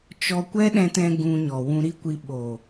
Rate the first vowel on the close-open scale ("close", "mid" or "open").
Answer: mid